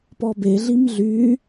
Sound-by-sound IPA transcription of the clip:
p ɔ b e ɮ i m ɮ y

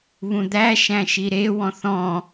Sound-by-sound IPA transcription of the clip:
β ũ d̪ æ ʃ æ̃ ʃ i ɾ e w ɔ̃ θ ɔ̃

